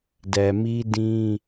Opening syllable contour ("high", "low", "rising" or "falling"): low